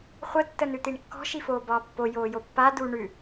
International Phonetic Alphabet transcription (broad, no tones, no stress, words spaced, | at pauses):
χʷə tːənʉt̪iɳkːɔ̤ ʃifoːbɒːpːo joːjopːa du ɳʉ